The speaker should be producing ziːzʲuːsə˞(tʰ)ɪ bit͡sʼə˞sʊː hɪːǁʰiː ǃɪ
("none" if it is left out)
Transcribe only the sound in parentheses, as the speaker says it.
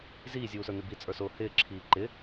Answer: n̪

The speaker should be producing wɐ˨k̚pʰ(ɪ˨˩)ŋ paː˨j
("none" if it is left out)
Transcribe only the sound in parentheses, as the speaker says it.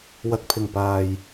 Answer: ɪ˨˩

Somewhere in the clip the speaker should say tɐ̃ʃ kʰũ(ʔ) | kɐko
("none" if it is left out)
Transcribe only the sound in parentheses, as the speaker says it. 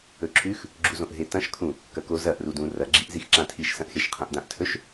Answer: none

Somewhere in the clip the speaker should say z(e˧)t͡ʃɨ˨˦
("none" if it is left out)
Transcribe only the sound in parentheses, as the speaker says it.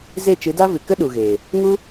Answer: e˦˨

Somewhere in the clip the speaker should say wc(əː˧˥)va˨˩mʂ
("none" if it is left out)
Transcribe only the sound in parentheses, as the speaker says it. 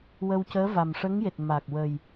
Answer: əː˧˥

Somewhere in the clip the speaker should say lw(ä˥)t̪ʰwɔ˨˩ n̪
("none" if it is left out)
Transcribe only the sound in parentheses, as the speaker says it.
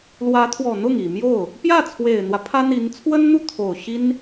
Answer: ä˧˥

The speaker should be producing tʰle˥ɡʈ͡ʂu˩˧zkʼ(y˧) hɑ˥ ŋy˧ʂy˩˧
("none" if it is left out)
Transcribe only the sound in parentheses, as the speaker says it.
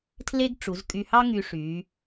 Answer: y˧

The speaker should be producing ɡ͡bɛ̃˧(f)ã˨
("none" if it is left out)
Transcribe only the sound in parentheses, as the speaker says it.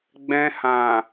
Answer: h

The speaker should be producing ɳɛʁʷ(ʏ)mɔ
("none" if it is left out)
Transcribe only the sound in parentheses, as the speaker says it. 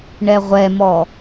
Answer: ɛ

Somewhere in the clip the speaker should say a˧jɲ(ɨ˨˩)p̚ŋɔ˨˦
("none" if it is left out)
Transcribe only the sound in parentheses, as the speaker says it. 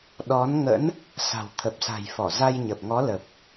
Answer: ə˨˩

